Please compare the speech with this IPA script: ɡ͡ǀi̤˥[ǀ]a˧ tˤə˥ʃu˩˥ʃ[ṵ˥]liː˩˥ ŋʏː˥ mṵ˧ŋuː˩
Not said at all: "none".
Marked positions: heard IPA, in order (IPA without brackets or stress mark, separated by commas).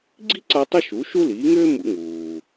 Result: ǀ, u˥